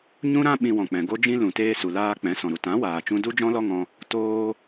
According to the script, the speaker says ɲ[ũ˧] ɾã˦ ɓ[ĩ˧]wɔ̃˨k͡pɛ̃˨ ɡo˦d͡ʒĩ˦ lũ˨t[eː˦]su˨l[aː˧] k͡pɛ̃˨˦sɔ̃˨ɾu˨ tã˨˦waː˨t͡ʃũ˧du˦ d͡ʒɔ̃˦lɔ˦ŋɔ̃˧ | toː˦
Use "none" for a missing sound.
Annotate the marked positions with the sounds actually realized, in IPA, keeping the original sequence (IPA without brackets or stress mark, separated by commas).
ũ˦, ĩ˧, eː˧, aː˧